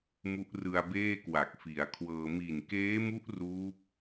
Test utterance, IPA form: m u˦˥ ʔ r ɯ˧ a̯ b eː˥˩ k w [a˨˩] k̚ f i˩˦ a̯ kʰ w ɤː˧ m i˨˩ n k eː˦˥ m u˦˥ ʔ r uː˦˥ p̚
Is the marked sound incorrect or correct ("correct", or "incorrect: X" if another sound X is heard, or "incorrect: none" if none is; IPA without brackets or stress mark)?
correct